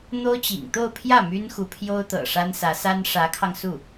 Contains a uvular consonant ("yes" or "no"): no